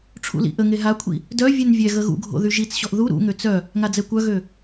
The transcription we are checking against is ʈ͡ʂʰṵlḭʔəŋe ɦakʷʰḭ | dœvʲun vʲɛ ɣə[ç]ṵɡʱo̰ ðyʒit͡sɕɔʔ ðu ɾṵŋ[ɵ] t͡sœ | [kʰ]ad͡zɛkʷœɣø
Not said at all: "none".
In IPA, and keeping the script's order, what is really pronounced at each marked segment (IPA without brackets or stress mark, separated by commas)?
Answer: ɣ, ø, ŋ